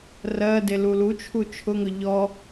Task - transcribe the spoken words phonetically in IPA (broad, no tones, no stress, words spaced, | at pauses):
rɜ delulut͡ʃʰu t͡ʃʰʊŋʊ ʎɔ